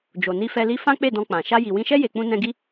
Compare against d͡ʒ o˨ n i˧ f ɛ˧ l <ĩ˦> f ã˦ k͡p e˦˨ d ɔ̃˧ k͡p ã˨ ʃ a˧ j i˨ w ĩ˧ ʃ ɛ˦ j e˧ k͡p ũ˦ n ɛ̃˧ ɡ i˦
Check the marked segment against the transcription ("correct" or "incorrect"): incorrect